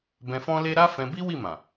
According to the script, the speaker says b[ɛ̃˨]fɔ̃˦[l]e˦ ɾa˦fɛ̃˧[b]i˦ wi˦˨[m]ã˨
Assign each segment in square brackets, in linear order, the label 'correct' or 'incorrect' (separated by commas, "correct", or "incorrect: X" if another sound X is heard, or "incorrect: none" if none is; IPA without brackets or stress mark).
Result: incorrect: ɛ̃˧, correct, correct, correct